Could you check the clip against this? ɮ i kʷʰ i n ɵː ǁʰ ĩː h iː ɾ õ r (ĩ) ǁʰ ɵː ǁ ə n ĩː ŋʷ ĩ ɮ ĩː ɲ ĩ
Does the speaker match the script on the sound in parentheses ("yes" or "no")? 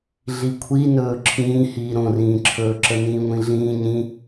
no